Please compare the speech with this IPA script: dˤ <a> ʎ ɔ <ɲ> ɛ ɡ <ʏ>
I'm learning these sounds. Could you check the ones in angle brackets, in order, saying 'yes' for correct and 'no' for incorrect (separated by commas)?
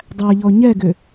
no, yes, yes